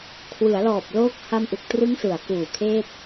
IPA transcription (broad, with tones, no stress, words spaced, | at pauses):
kʰwɯ˩˦a̯lɔː˨˩p̚loː˦˥k̚ ha˧m ʔu˨˩k̚trɯ˦˥ŋsɯ˩˦a̯ kuː˨˩kʰeː˥˩t̚